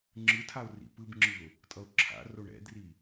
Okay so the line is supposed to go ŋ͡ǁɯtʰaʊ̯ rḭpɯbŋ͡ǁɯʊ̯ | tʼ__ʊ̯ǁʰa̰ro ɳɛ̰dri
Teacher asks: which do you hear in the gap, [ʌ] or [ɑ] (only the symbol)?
ʌ